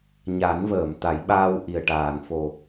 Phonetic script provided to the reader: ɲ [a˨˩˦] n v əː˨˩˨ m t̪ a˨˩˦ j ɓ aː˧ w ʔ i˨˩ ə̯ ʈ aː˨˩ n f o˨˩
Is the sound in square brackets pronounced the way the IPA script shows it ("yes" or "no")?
yes